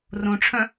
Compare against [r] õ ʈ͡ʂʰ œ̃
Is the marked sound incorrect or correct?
correct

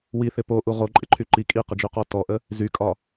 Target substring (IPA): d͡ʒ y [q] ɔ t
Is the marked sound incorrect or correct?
correct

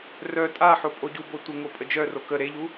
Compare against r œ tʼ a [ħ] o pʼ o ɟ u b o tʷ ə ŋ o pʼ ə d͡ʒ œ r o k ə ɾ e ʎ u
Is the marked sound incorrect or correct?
correct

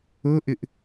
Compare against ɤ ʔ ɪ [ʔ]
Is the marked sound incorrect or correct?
correct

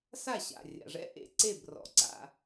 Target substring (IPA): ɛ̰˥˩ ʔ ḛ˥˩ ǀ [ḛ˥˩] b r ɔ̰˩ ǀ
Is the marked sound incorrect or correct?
incorrect: e˥˩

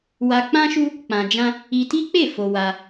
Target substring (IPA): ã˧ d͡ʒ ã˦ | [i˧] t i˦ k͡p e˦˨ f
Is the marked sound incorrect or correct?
correct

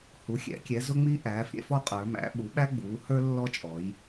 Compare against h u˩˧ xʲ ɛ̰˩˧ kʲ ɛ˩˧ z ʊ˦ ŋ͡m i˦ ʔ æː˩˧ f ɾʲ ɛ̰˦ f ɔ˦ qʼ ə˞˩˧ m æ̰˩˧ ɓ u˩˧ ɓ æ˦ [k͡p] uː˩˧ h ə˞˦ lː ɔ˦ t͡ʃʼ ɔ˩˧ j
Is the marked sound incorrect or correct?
incorrect: ɡ͡b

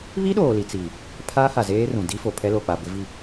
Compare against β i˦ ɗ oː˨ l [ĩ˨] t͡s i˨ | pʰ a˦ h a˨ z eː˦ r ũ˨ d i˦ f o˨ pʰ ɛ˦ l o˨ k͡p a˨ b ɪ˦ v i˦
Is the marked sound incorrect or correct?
incorrect: i˨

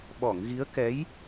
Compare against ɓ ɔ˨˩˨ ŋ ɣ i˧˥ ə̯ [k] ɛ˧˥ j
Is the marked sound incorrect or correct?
correct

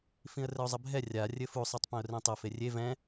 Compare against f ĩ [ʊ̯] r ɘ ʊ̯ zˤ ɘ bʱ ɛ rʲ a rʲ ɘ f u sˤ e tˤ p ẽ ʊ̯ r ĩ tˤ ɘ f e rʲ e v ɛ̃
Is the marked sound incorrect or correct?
incorrect: ə̯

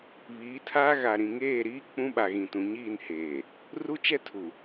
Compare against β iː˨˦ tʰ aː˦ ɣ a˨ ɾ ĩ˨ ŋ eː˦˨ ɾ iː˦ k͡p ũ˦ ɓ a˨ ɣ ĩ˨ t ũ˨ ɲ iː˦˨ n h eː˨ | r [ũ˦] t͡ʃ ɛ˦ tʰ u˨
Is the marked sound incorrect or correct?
incorrect: u˦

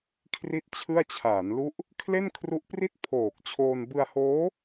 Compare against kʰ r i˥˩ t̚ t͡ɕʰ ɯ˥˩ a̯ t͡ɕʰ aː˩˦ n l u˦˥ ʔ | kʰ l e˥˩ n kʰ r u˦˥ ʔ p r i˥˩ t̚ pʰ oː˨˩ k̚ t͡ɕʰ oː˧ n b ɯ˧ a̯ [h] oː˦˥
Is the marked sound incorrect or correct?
correct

